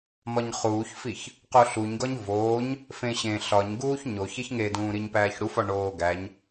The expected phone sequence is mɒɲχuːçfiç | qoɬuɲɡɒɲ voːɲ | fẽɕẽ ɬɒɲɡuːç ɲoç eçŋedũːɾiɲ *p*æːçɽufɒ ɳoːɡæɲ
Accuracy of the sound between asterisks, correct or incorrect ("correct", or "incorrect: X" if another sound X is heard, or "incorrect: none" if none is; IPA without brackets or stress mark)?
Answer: correct